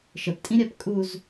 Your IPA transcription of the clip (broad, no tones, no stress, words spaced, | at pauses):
ʃəptʼĩɾʲap kʼuz